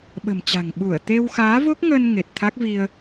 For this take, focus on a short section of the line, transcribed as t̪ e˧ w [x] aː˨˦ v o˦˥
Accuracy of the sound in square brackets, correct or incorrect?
correct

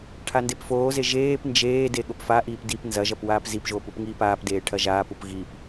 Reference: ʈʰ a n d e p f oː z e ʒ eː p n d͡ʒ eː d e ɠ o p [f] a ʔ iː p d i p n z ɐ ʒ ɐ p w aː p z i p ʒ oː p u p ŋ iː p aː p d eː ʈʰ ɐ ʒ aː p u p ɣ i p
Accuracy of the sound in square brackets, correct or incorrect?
correct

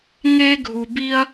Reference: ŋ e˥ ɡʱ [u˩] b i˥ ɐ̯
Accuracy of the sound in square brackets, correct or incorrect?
incorrect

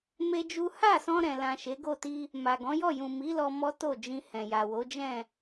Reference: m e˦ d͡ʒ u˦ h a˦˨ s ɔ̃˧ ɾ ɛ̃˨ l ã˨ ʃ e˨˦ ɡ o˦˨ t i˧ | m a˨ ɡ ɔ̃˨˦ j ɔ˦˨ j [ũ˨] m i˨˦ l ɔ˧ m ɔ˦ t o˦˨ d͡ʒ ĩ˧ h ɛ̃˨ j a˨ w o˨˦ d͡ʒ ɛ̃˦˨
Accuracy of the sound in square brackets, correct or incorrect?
correct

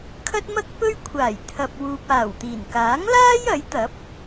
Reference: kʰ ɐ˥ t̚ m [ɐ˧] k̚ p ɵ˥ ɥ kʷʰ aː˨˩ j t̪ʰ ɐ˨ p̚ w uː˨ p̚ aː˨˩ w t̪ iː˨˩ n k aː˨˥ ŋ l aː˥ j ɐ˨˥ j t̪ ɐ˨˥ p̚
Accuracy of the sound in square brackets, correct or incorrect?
incorrect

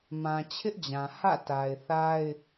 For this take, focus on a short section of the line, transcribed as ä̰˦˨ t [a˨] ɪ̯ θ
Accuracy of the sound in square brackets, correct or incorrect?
correct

